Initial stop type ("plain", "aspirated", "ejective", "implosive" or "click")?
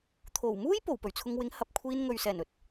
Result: aspirated